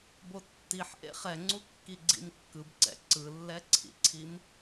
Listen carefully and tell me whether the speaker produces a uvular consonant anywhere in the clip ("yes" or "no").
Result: yes